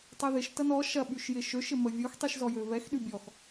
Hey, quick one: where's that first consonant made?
tongue tip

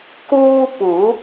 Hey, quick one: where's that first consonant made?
velum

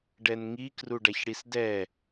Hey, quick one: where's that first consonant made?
retroflex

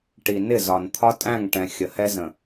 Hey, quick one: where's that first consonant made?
retroflex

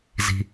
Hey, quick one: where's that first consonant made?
tongue tip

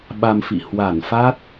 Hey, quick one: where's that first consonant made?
lips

